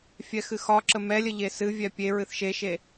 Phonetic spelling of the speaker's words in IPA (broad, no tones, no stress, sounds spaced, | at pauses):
fʲ ɛ x ɨ x ɒ ǁ ə m ɛ lʲ ə ʎ e s ɨ vʲ ɛ pʲ e ɹ ɨ θ ʃ e ʃ e